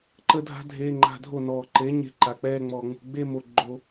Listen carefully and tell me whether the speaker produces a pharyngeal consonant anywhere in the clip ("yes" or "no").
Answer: no